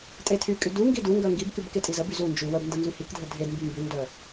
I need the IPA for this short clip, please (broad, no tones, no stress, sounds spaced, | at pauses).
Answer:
tʼ e tʰ y kʼ y d u ŋ ɡ i d u ŋ ɡ œ ŋ ɡ i b k y b k e tʼ i z ə b y z u n d͡ʒ y w ə b n d ə n z y h i k dʱ ə dʱ e d m b y m b y n d œ